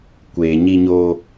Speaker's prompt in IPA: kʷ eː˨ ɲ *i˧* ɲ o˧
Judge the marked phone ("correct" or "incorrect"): correct